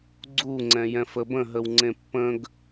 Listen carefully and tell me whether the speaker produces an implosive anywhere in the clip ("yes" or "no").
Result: no